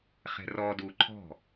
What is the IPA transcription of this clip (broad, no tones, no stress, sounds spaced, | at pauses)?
χ ɛ̤ r ɔ d u ǃʰ ɔ̤